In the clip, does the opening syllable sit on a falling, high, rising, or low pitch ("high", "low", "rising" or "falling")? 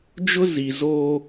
high